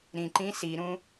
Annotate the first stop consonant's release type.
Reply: click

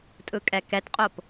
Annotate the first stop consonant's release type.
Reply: ejective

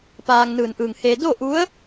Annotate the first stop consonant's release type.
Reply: plain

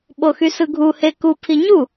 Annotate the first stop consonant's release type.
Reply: implosive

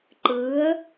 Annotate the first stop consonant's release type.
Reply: click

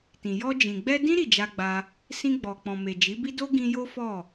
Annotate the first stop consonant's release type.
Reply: plain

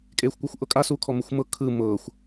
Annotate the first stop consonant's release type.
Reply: ejective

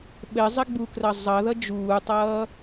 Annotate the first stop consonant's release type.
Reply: implosive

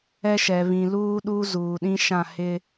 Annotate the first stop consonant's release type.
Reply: implosive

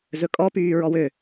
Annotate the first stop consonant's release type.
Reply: ejective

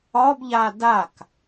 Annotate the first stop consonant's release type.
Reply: plain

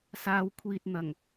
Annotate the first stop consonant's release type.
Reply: aspirated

